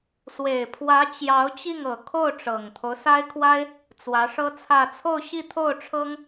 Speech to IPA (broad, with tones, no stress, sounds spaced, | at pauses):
s w e˨˩ ɪ̯ pʰ w ä˧˥ t͡ɕ j ɑ˧˥ ʊ̯ t͡ɕ i˥˩ ŋ ɤ˨˩ kʰ o˥˩ ʊ̯ ʈ͡ʂ ɤ˨˩ ŋ t̪ʰ o˦ ʊ̯ s a˥ ɪ̯ kʰ w a˥ ɪ̯ | t͡s w ä˧˥ ʂ ɤ˥ t͡sʰ ä˥˧ t͡sʰ o˥˧ ʊ̯ ɕ i˥˧ t̪ʰ o˥˩ ʊ̯ ʈ͡ʂʰ ɤ˥ ŋ